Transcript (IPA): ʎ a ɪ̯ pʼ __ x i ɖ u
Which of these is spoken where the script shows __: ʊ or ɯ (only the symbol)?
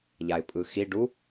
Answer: ɯ